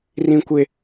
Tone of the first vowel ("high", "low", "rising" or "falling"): high